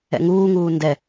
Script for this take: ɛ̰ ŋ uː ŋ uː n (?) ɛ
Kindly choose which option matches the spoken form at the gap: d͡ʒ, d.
d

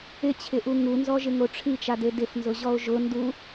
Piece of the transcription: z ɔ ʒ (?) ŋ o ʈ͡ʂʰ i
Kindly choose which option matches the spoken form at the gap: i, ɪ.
ɪ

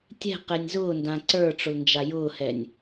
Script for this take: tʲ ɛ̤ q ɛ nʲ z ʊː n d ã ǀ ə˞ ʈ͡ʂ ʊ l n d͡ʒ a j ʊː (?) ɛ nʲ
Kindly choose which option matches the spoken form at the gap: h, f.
h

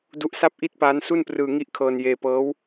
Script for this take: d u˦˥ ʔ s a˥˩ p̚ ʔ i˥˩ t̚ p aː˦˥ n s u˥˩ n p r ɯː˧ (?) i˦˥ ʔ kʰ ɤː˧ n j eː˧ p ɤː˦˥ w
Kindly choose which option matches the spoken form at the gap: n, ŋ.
ŋ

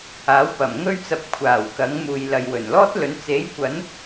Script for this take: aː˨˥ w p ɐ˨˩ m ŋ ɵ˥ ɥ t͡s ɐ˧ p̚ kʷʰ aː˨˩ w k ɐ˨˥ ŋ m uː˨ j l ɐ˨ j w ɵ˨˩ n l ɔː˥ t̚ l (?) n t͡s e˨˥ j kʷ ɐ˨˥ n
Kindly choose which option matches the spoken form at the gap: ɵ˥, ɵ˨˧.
ɵ˨˧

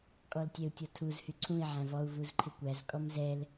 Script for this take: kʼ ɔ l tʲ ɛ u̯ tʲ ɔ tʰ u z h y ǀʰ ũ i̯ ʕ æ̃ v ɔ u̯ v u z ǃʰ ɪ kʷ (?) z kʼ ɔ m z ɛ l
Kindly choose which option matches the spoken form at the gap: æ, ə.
æ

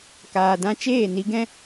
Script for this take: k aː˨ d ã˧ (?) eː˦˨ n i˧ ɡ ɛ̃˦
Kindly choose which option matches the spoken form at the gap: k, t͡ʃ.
t͡ʃ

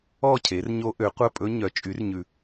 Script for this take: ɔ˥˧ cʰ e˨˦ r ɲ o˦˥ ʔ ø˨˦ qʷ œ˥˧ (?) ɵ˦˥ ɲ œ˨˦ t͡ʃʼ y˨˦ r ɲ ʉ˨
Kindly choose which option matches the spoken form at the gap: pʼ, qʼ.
pʼ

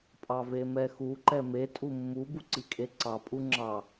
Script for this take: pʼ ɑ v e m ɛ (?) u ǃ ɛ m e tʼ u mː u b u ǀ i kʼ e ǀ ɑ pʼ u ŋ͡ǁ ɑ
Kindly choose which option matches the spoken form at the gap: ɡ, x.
x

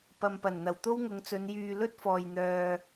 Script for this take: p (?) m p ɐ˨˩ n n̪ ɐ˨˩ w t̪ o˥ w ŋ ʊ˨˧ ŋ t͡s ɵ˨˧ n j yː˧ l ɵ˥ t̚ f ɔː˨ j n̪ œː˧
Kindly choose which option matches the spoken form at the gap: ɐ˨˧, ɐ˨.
ɐ˨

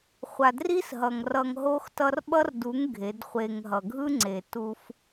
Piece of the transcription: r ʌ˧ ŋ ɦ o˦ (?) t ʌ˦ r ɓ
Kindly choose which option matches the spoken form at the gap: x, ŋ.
x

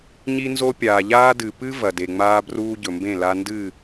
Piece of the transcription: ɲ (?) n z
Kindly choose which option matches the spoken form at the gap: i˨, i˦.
i˦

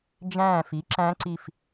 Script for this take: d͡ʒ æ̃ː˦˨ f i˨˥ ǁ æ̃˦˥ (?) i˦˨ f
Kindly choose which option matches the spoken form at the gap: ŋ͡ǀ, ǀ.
ǀ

